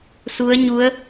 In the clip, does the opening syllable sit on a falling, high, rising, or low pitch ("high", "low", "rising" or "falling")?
rising